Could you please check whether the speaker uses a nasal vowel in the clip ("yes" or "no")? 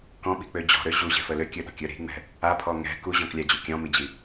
yes